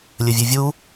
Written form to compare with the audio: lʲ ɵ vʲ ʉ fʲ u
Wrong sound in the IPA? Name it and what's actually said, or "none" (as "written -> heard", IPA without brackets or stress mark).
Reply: fʲ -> vʲ